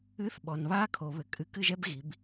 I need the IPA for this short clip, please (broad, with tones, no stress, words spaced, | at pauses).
ɨ˧˥˧θɓɔ˨n βaː˥kʰo˨˩˦ βɘ˨ kʼɨ˧˥˧kɨ˥˧ʒɛ˥b ɣi˨˦b